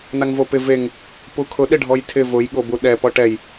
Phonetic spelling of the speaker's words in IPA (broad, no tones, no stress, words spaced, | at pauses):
naŋvopɪ veŋ | pukʰʊ ɗɪɖʱɔjtʰɪ vʊj ɠobuɗɛ pɔʈɛj